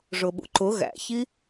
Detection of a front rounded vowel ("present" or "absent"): absent